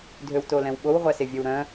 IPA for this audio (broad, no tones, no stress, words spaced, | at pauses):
dʱøwtolɛ̃wɓow ʁʷæsevʲɛwɾœ̃